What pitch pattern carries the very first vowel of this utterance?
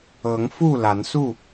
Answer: rising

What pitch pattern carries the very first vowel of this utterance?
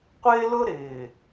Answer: high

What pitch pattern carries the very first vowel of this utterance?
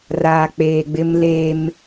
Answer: low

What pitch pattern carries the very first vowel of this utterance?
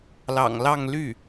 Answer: low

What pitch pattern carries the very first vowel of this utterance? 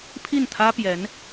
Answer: falling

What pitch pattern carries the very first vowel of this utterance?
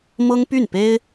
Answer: high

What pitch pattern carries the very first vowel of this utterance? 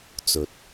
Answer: low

